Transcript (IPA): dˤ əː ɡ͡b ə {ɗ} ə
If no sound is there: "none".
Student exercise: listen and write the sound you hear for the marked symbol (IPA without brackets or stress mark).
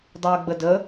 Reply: d